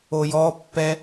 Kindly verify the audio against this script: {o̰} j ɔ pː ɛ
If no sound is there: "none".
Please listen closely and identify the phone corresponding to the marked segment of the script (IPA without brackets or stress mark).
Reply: o